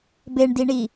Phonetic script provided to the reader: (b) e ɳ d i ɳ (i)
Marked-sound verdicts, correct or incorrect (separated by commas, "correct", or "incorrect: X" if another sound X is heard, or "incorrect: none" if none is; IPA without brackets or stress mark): correct, correct